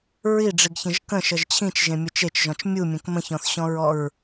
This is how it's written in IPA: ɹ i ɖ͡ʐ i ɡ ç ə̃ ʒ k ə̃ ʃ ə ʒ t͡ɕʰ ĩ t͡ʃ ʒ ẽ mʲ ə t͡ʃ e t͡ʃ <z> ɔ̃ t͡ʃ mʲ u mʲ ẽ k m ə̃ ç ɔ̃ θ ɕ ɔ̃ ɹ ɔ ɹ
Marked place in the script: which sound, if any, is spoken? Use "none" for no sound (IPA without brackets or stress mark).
ʒ